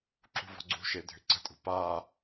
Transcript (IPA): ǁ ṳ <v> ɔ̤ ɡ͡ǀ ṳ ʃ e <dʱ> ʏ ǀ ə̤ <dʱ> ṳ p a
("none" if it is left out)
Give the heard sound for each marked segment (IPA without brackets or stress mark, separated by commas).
v, dʱ, tʼ